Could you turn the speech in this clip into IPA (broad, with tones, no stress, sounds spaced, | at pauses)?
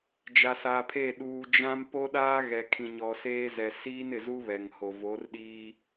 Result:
d͡ʒ a˨ s a˨ pʰ e˦˨ ɗ uː˨ d͡ʒ ã˦ m p o˦ ɗ aː˦ ɣ ɛ˨ kʰ ĩ˨ ɲ ɔ˨ s eː˦ z ɛ˨ s iː˦ n ɪ˨ z u˦ β ɛ˨ ŋ h o˨ v o˨˦ r ɗ iː˦